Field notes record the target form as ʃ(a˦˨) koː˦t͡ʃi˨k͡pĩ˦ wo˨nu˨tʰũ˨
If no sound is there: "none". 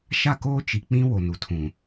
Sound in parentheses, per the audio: a˦˨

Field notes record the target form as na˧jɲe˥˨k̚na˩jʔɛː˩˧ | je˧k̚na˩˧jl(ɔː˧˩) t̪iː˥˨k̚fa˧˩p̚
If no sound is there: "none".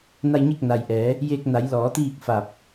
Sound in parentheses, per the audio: ɔː˩˧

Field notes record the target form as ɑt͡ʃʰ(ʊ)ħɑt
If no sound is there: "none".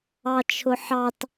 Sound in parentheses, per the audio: ʊ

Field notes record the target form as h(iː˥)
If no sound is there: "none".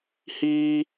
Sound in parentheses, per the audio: iː˥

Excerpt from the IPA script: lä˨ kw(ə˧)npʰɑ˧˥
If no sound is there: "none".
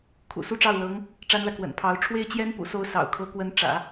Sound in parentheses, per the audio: ə̰˨˩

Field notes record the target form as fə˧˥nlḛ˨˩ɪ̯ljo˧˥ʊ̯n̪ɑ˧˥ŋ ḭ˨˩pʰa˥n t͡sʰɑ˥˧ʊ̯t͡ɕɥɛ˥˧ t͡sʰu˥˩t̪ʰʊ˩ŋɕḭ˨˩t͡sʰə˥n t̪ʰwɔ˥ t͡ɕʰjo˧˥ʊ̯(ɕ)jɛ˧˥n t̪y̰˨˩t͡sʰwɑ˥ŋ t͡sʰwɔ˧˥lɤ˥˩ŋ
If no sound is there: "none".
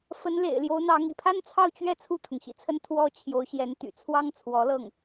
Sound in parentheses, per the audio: ɕ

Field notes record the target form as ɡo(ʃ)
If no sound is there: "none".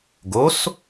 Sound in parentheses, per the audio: s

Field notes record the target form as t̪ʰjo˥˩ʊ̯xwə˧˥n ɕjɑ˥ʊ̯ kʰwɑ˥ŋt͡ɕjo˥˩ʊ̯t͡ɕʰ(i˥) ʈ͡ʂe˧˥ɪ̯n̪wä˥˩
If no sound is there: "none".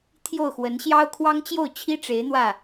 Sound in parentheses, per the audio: i˥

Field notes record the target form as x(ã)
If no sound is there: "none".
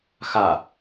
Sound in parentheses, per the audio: a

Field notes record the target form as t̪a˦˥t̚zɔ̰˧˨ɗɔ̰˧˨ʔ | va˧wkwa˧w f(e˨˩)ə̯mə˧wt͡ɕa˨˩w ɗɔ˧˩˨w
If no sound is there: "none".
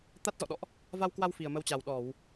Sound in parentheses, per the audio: i˨˩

